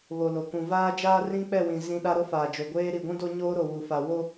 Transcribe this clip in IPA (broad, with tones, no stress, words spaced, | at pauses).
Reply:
βo˨lo˨ kũ˨vaː˦d͡ʒaː˦ rĩ˦k͡pɛ˦˨ wĩ˨ zĩ˦ɗa˦ ɾo˦faː˨d͡ʒo˨ɡʷeː˦ ɾi˨ɡʷũ˦do˦ ɲoː˦ɾo˨wu˨fa˨ wo˦